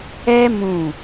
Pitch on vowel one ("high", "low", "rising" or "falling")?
high